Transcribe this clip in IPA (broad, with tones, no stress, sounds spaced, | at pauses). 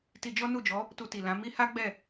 t i˧ d͡ʒ ɔ˦ n u˦˨ d͡ʒ ɔ˨˦ | t u˧ t i˨ l ã˨˦ m i˦ h a˦ ɡ͡b ɛ˦˨